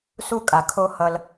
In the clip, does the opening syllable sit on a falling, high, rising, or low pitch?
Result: high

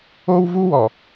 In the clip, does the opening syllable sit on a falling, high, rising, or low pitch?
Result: high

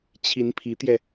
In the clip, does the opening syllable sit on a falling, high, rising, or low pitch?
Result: rising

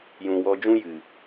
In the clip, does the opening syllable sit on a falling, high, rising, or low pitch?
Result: low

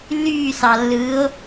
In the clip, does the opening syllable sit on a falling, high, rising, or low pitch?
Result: falling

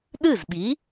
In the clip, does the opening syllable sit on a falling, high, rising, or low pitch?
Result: falling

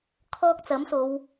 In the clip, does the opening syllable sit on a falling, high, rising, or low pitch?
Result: high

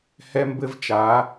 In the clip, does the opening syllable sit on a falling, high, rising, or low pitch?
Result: high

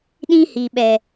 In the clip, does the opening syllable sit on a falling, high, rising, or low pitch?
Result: high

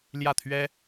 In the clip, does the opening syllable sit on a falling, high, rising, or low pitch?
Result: falling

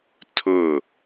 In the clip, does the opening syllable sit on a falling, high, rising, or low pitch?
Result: falling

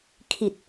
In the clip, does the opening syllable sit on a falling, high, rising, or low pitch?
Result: low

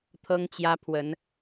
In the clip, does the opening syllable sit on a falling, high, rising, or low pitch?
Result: high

